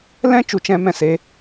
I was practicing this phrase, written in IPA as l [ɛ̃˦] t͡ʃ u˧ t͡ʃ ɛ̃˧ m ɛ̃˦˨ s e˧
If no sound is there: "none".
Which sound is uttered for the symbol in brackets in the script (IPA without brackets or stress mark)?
ɛ̃˦